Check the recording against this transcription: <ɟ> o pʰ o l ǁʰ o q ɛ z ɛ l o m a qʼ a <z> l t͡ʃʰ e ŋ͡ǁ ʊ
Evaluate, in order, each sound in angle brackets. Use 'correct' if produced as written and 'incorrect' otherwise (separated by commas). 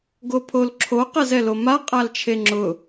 incorrect, incorrect